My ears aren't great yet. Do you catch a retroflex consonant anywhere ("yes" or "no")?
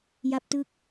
no